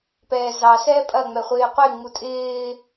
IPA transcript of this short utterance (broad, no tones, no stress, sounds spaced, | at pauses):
p ɛː z ɑ s ɛː pʼ ɐ ŋ͡m ɛ χʷ ɪː qʷ e ŋ͡m u tʼ ɪː